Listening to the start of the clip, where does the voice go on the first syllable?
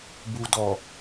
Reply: low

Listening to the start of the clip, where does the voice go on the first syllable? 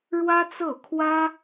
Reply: high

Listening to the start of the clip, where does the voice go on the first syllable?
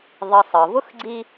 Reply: low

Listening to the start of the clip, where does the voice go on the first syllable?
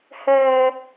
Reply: high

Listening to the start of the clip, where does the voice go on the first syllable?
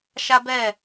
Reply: high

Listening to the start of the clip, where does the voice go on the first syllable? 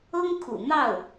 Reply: high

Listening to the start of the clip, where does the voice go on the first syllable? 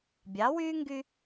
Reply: rising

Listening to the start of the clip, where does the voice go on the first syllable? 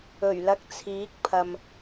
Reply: low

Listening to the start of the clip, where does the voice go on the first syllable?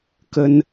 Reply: high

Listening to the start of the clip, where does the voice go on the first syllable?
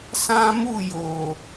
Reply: high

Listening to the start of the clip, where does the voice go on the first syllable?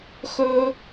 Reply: high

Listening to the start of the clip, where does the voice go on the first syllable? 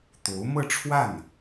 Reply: rising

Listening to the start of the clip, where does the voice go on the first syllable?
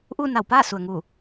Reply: falling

